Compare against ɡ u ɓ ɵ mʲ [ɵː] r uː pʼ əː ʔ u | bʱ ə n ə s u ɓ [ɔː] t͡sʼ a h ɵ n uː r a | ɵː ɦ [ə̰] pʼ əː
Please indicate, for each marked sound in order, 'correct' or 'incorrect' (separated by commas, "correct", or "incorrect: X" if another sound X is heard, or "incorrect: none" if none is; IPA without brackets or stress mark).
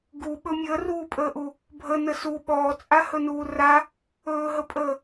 incorrect: əː, correct, incorrect: ə